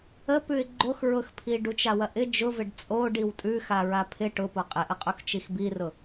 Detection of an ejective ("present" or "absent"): present